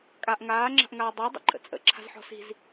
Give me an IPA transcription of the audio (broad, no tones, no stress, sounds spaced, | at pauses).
kʼ a ʔ ŋ aː ŋ͡ǁ a̤ ʔ ŋ aː dˤ a dˤ ə̰ ǃʼ ə̰ t͡sʼ ə̰ ǁʰ a̤ z ħ ɔ̤ s i̤ z